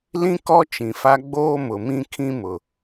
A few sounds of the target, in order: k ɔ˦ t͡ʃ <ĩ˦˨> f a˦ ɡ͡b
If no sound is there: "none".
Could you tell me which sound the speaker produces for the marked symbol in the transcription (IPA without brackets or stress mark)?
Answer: ĩ˨